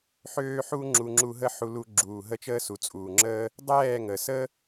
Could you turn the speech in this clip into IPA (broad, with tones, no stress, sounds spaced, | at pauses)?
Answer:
ħ øː˧ ħ u˧ ŋ͡ǁ u˧ ŋ͡ǁ u˧ ɦ ə˦ ħ u˧ l u˧ ɡ͡ǁ uː˨ ɦ ə˧ t͡ʃ əː˧ s u˨ t͡sʼ uː˨ ŋ͡ǁ əː˧ | dˤ ɛː˦˨ ŋ ə˨ s ə˦